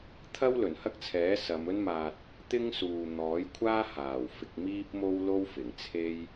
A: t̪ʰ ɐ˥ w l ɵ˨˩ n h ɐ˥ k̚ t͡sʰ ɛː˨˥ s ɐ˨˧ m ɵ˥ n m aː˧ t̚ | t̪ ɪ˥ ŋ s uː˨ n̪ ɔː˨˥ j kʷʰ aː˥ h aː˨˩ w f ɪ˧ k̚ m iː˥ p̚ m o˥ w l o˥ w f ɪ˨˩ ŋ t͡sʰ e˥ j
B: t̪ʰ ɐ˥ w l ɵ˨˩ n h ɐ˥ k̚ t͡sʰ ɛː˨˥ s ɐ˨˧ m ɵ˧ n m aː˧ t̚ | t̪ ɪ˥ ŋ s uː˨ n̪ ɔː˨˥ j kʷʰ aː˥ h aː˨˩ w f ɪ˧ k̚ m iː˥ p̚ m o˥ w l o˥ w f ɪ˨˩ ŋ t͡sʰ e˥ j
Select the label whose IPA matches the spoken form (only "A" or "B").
A